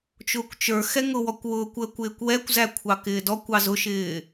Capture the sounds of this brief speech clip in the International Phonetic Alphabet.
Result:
t͡ʃ ʊː kʷ t͡ʃ ə˞ x ɛ ŋ ʊ w ɔ kʷ w ʊː kʷ əː kʷ ɪː kʷ w ɛ kʷ z æ kʷʰ ɑ k ɪː d ɔ kʷ ɑ z ʊ ʃ ɪː

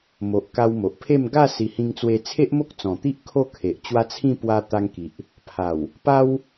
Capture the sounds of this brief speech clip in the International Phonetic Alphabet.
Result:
m o˨ ʔ k a˧ w m o˨ ʔ pʰ e˥˧ m ɡ a˥˧ s i˧ h ĩ˧ ŋ t͡s w e˧ t͡sʰ e˦ ʔ m o˦ k̚ t͡s ɔ̃˨˩ t̪ i˦ ʔ kʰ o˥˧ kʰ e˨ ʔ t͡ɕ w a˦ t͡sʰ ĩ˥˧ p w a˧ t̪ a˧ ŋ k i˨ ʔ | pʰ a˨˩ w | p a˦ w

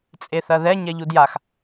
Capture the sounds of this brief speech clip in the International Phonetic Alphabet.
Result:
t͡sʼ e θ ɐ ð ɛ ɲ ɛ ʎ u d j a x

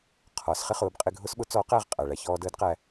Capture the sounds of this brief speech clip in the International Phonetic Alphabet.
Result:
qʰ ɒ˩˧ s χ ɪ˥ χ ʊː˩˧ b qʼ ɪ˧ ɡʱ ʊ˥ s ɓ ʊ˧˥ t͡s ɔː˧˥ q æ˧ ʁ qʼ æ˩ ɭ æ˧ ç ɔː˧ d əː˧˥ d q æ˧

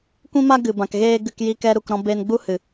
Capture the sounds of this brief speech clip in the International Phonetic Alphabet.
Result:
kʷ ĩ˦ m a˦ ɡ ɨ˨ b ã˨ k ɣ eː˦ ɡ ɨ˧ k j i˦ k ɛ˦ ɾ u˧ k ɾ ɔ̃˦ b e˧ n ɡ͡b u˦ h ɨ˨

